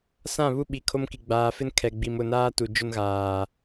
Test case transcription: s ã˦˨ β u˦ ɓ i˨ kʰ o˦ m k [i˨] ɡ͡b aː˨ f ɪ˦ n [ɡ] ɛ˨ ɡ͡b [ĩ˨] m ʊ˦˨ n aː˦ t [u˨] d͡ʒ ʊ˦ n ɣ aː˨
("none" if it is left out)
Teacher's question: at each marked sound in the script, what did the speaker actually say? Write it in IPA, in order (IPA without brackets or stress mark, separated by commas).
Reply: i˨, kʰ, i˨, u˨